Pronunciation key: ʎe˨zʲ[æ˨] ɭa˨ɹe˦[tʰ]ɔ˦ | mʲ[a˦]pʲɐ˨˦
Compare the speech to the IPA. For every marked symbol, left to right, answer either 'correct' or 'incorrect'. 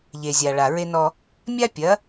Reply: incorrect: a˨, incorrect: n, correct

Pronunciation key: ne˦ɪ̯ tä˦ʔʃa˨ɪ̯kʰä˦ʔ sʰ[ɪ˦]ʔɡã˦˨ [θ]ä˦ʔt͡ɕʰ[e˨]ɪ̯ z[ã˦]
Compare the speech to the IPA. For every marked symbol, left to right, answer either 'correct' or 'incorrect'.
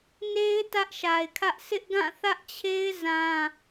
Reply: correct, correct, incorrect: e˦, correct

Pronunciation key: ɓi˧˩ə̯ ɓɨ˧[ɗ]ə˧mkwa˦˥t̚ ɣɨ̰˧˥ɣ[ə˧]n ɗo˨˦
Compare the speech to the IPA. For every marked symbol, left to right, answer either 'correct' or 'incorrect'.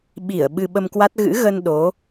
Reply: incorrect: ɓ, correct

